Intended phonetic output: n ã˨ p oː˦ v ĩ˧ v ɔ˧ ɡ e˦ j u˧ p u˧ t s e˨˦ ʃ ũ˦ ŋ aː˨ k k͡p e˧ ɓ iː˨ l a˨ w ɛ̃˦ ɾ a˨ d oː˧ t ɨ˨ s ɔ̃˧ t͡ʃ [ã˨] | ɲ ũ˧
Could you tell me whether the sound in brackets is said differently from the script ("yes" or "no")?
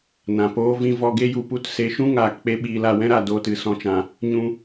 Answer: no